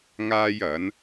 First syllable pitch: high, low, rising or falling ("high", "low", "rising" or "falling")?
high